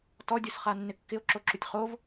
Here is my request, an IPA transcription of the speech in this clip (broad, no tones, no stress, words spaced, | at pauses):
tɔdʲosχa nːɪkːɪo̯ǁoǁutʲ χov